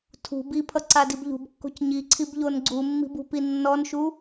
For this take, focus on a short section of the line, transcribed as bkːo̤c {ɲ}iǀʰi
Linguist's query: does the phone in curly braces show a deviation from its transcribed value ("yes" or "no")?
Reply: no